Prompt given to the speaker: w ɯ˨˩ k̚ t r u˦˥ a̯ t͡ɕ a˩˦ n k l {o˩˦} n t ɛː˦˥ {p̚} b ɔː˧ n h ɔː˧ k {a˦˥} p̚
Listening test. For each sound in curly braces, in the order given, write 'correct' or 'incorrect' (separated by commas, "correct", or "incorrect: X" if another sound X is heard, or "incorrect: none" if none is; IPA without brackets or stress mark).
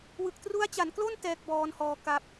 incorrect: o˥˩, incorrect: k̚, correct